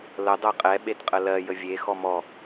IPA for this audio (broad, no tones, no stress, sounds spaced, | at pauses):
l ə dˤ ɜ qʼ ɛ ɓ e t qʼ ə l ɜ j ə vʲ e x ɔ m ɔ